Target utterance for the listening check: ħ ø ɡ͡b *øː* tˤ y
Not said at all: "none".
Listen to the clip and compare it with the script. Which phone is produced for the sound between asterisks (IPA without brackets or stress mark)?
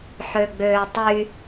øː